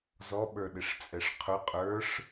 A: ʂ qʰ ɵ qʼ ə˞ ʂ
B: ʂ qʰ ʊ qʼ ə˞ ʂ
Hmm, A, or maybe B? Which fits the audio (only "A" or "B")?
B